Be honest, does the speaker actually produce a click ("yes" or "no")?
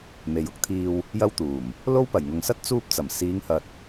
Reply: no